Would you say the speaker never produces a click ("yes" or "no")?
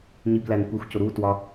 yes